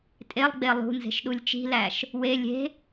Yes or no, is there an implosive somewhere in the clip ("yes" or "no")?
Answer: yes